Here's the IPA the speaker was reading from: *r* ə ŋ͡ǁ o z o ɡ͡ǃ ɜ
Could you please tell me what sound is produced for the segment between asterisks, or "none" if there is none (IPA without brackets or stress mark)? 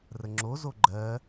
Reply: r